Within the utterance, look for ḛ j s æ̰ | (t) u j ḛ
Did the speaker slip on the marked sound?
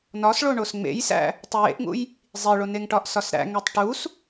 yes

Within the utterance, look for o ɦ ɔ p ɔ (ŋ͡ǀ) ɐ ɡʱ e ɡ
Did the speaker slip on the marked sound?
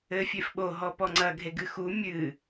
no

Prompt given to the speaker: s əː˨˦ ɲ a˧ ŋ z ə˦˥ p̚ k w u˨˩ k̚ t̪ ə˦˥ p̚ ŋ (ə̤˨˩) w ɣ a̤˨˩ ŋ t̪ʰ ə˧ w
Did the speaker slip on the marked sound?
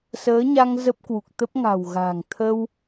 yes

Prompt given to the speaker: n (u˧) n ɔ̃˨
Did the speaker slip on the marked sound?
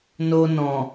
yes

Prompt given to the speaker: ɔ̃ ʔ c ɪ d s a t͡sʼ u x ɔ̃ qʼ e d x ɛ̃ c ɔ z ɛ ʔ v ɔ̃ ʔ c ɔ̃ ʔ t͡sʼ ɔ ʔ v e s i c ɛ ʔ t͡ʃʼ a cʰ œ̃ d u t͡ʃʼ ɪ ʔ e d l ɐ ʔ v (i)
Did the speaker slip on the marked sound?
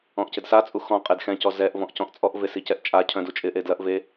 yes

